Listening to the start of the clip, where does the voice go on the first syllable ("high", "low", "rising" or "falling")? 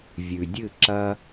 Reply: low